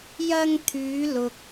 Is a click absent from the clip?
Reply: yes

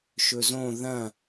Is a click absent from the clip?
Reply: yes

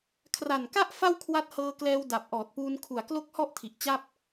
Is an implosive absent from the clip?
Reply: yes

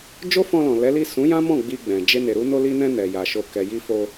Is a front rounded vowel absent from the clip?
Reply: yes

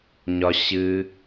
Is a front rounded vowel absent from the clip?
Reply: yes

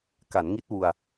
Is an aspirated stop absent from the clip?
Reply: yes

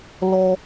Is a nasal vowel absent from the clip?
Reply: yes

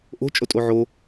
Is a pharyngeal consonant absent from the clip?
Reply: no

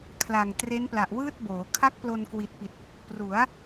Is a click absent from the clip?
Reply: yes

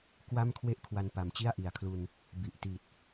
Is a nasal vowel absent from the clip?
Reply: yes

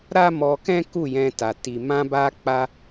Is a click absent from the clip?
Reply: yes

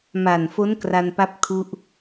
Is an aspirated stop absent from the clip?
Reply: no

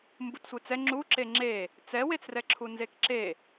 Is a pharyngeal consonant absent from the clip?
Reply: yes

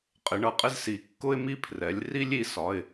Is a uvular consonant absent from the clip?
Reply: no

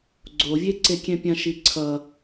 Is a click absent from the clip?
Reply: no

